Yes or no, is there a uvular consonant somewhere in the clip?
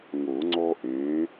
no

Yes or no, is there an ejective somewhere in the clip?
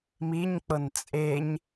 yes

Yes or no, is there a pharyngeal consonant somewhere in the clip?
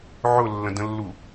yes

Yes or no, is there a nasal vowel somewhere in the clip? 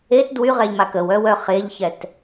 no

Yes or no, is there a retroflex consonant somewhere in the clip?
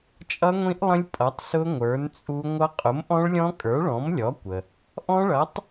yes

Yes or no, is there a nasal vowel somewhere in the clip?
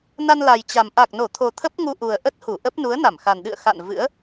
no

